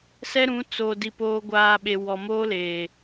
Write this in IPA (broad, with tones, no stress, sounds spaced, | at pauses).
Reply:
s ɛ˦ ɾ ũ˨˦ t͡s o˨ d i˨ p oː˨ ɡʷ aː˨ ɓ e˨ w ɔ˨ m oː˦ l eː˨